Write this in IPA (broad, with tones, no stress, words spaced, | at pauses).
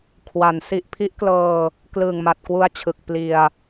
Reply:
kʰwa˩˦n si˨˩ʔpʰi˦˥ʔklɤː˧ | klɯː˨˩ŋma˨˩t̚kwu˦˥a̯t͡ɕʰɯ˨˩k̚ pli˧a̯